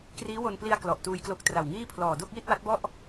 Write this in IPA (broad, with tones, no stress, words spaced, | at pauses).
kriː˦˥wo˧n pli˧a̯ klɔ˨˩ʔtuː˧jklo˦˥k̚ tra˨˩wŋiː˥˩pʰlɔː˨˩ do˥˩k̚ji˥˩t̚wa˦˥t̚bɔ˥˩ʔ